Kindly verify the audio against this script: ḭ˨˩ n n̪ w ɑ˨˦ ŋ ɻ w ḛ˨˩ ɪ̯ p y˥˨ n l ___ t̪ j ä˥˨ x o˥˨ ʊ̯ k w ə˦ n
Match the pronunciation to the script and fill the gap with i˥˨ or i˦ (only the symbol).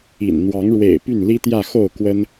i˦